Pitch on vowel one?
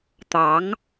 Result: rising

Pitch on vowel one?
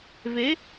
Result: rising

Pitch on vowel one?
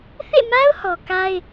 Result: falling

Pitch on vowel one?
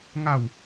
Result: falling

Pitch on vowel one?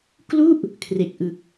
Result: falling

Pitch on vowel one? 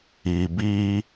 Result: low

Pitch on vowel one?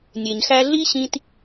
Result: low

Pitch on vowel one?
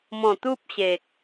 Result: low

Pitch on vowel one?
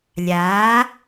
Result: rising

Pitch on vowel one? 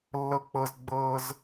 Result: high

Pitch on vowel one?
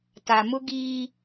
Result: low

